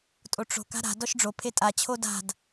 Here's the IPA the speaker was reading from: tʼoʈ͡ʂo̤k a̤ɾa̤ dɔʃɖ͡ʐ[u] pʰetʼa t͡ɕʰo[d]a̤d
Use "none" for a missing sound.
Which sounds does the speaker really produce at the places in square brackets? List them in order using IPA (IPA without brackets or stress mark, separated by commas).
o, d